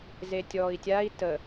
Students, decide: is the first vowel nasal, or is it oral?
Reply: oral